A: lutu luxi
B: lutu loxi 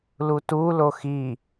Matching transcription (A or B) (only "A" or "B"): B